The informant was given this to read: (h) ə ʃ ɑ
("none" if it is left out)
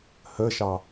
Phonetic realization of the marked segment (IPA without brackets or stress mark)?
h